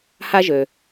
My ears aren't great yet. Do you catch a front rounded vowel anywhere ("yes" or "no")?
yes